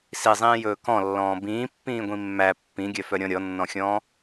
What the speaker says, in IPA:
sizˤĩːjɵː kɔ̃lːɔ̃ː bĩːpːĩːɡʷĩ mːæ pːĩɡʲœfœɾʲɔ̃ ɾʲɔnːɔ̃xʲɔ̃ː

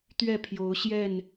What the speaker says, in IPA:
t̪ɥɛ˥˨pʰjo˨˦ʊ̯ ɕjɛ˥˨n

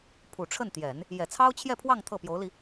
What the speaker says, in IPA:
pʰu˨˩ʈ͡ʂʰə˥˩nt̪jɛ˨˩˦n | jɛ˨˩t͡sʰɑ˥ʊ̯t͡ɕʰjɛ˥˧pʰwɑ˥˧ŋ t̪ʰɤ˥˩pjo˧˥ʊ̯li˧

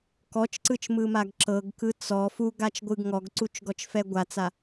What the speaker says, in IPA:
kɔt͡ʃǀɯt͡ʃmɯmaɡ ǁɤɡkɯ t͡sɔ fuɡat͡ʃɡʷɯɡ ŋɔɡǀut͡ʃɡɔt͡ʃfɛ ɡʷat͡sa

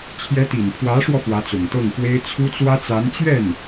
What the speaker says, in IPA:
t͡ɕʰjɛ˧˥t̪i˨˩npʰwä˧˥ʂwɔ˧ fwä˧˥t͡sʊ˨˩ŋt̪ɤ˥˩ŋfwe˥ɪ̯ t͡sʰu˥t͡swä˥t͡sa˧˥n t͡ɕɥɛ˥˩n

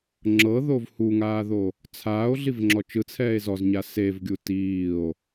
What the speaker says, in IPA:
ŋ͡ǁɤðov huŋaːðo | t͡sʰaːo̯ɮivŋ͡ǁɔ t͡ʃɯt͡sʰɛːe̯ zɔzɲa sevɡʲu tiːo̯

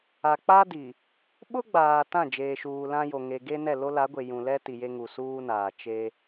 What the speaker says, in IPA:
a˨k͡pa˦di˨ | ɓʊ˦ɡ͡baː˨ tã˦˨ d͡ʒeː˨ʃuː˨lã˦jo˨ ŋe˨ɡe˦nɛ˦˨ lo˦la˨˦ɡʷe˨ jũ˨lɛ˦ ti˨je˦ ŋu˨suː˦naː˨ t͡ʃe˦

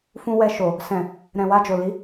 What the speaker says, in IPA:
fũ˧wɛ˧ʃo˨ | sɛ̃˨ | ɾɛ̃˨wa˧d͡ʒo˨ li˨˦

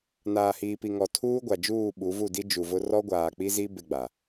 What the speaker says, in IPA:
naː˨hiː˨pi˨ŋɔ˨ tʰuː˦ɡʷa˨d͡ʒuː˦˨ ɓu˨˦vu˦˨di˦ d͡ʒu˨vʊ˦ rɔ˦ɡʷaː˨k͡pi˦zi˦ bɪ˦ɡ͡ba˨

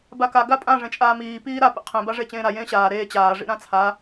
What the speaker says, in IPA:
baka ɡapʼã ʐẽt͡ʃʼaːmiː piːɾa pḭqʰẽ baʐet͡ɕẽːɾa jẽːɕaː ɾeː t͡ɕaː ʐḭɾãt͡sʰa

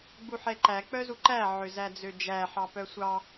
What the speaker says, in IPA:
ɡ͡buħɛǃæ k͡pœzuǃæ ʕøzæd͡zød͡ʒæ ħɑpœsʷɑ

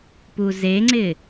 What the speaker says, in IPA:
puzeŋ͡ǀɪ

